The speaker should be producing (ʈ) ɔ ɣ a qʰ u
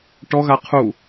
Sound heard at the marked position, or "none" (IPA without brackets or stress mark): ʈ